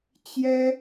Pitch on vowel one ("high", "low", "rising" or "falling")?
high